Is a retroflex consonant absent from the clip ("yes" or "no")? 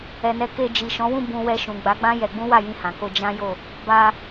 yes